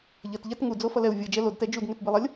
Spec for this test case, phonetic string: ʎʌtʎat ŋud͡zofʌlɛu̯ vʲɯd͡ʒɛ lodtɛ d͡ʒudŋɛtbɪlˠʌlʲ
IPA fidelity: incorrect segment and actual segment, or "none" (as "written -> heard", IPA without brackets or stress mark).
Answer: ɪ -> i